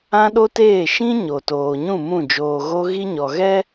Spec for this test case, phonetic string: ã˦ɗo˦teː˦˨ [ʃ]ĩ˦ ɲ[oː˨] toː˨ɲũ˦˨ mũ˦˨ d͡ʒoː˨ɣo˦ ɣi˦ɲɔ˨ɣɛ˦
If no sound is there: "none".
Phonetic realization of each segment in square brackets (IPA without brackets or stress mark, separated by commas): ʃ, o˨